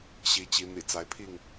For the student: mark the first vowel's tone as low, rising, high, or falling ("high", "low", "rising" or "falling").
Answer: rising